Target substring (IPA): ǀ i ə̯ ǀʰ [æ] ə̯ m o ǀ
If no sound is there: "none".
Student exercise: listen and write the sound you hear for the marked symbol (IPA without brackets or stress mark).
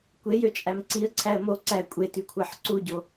æ